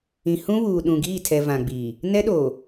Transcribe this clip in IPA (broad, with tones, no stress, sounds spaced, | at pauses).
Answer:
ĩ˨ h ũ˦ β uː˨ ɗ ũ˨ ɡ iː˦˨ tʰ ɛ˨ v ã˨ ɡ͡b iː˨ | n ɛ˦ ɗ oː˨